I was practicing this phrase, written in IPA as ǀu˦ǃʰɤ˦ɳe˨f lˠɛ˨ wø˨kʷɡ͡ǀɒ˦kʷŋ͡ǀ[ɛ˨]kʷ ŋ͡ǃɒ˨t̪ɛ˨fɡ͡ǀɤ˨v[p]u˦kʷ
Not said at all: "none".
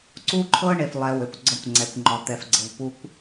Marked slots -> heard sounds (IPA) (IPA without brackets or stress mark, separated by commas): ɛ˨, p